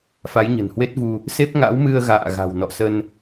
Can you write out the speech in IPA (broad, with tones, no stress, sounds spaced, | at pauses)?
f a˨˦ j ɲ ə̤˨˩ n h w e˦˥ t̚ v u˧ | s e˦˥ p̚ ŋ a̰˧˥ w m ɨ˧ ə̯ ɣ a̰ː˧˨ ɣ a̤˨˩ w n ɔ̰˧˨ s ə˧ n